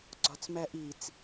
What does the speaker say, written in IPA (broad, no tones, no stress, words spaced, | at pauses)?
ɡ͡ǀɒt͡smæʔit͡s